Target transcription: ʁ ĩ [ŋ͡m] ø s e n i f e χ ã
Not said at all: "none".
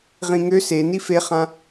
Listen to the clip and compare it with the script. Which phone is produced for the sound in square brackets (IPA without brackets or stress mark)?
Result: ŋ